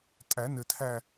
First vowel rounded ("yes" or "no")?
no